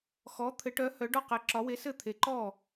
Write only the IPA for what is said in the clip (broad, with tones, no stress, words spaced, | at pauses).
xɔ˧˥ t̪ʰɘ˧˥ʈœ˧˥ hœ˧˥ɖɔ˥˧qɛ˧˥ ǁɒ˧˥we˧˥ sɘ˥˧t̪ʰe˧˥ ǃɔ˥˧